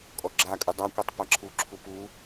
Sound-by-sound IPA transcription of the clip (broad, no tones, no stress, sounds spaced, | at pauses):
kʼ ɔ ɡ͡ǁ a kʼ ɯ dˤ a kʷ ɛ tˤ p a ǁʰ u ǁʰ u p u